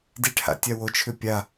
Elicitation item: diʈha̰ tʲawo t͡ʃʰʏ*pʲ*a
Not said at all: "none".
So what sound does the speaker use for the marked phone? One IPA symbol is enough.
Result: pʲ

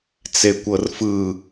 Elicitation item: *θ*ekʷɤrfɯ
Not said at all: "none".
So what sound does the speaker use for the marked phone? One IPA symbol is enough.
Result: t͡s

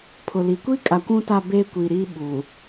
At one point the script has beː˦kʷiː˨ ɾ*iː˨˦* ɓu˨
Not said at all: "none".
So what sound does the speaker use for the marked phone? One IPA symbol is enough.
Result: iː˦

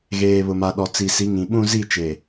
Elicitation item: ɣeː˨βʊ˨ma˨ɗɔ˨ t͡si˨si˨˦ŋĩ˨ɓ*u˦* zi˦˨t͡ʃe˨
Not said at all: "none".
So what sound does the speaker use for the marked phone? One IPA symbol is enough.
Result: ũ˦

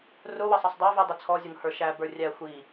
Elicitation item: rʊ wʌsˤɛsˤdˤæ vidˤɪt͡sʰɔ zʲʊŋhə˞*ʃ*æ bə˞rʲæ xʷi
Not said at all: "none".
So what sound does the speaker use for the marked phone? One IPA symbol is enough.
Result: ʃ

